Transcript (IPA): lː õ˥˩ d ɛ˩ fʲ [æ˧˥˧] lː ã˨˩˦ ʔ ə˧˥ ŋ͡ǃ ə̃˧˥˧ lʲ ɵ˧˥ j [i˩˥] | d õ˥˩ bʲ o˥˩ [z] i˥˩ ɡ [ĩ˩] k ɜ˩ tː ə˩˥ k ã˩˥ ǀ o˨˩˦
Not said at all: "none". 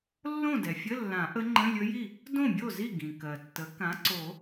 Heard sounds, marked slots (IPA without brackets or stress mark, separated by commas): ə˧˥˧, i˥˩, z, ĩ˩